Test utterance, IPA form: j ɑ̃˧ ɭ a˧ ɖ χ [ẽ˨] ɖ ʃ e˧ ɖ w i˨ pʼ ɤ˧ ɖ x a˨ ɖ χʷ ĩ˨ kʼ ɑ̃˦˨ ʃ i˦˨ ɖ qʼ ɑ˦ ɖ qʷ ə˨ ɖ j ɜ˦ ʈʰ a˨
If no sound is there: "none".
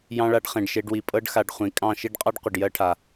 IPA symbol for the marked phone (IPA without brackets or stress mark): ẽ˨